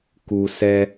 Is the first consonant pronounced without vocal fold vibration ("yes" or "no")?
yes